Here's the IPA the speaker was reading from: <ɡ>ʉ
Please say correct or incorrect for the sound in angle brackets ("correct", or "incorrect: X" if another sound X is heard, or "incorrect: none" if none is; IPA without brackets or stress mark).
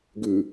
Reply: correct